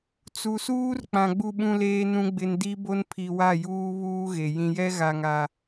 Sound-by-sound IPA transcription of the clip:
t͡s u˨ s uː˦ r k͡p ã˨ ɡ͡b u˦ ɓ ũ˦ l eː˦ n ũ˦ ɡ͡b ɪ˦ n d i˦ b o˦ n pʰ i˨ w a˦˨ j uː˦ β uː˦ ɣ e˨ j ĩ˨ j ɛ˦ ɣ a˨ ŋ a˨

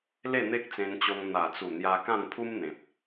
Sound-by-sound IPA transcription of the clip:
l e˥˧ n̪ e˦ k̚ t͡s ẽ˧ n t͡ɕ o˧ ŋ n̪ a˨˩ t͡s u˨˩ n̪ j a˧ k ã˥˧ n pʰ u˦ m n̪ ẽ˨ p̚

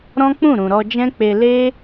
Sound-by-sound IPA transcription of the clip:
ɾ ɔ̃˦ k͡p ũ˦˨ ɾ ũ˨ ɾ ɔ˧ d͡ʒ ɛ̃˦ k͡p e˧ l e˦

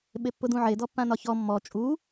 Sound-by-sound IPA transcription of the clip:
ɓ e pː ʊ d ũ ʕ e d ɔ pː ã n ɒ ç ɔ mː ɔ t͡ʃʼ u

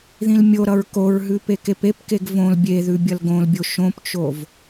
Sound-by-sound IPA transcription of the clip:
ð ĩ l mʲ o ɾ ʌ ɹ k o ɹ ɦ ʉ p e k e p e p k e ɡ v õ l bʲ e ð ʉ bʲ ʌ l ɡ õ l bʲ o ʃ õ p t͡ʃ o v

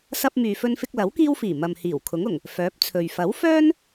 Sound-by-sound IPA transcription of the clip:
s ɐ˧ p̚ m yː˨ f ɵ˧ n f ɪ˧ k̚ l ɐ˨˥ w k iː˧ w f iː˨˩ m ɐ˨ m h iː˨˩ w kʰ ʊ˨˥ ŋ ʊ˨˩ ŋ | f œː˨˥ p̚ t͡sʰ ɵ˨ ɥ f ɐ˨˥ w f œː˥ n

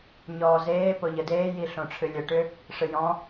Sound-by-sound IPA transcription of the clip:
ɲ ɔː z eː p o ʎ ə d eː j i ɬ õ ʈ͡ʂʰ ɨ lʲ ə ʈ ʏ | ʂ ɨ j ɔ̃

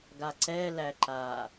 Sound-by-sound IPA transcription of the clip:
ɡ a ǀ ɛ l æ ǃ a

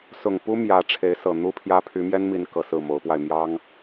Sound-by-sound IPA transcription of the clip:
s ʊ˨˩ ŋ p u˦ m j ä˨˦ ʈ͡ʂʰ e˨˦ ɪ̯ s ɤ˨˩ n̪ u˦ pʰ j ä˦ pʰ y˨˦ m j ɛ˦ n m i˨˦ n k ɤ˨˩ s ɹ̩˥˨ m o˨˦ ʊ̯ p w a˧ ɪ̯ m j ɑ˦ ŋ

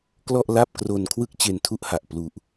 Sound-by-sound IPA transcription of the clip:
k l ɔ˥˩ ʔ l a˥˩ p̚ k r o˧ n kʰ w ɯ˥˩ k̚ t͡ɕ e˧ n tʰ u˥˩ ʔ h a˨˩ ʔ p l u˨˩ ʔ

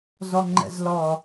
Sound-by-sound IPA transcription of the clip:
z ɔ ŋ͡ǃ ɛ̰ z l ɔ

